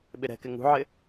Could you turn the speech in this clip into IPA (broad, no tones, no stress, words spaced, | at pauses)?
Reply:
ɓɪɾɛ̤kɪ ŋṳʕɪ